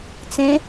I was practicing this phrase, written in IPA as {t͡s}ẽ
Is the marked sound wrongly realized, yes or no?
no